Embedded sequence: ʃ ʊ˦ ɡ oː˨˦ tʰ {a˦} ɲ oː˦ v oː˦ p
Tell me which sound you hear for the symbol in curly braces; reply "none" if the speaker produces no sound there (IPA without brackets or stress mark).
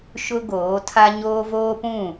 a˦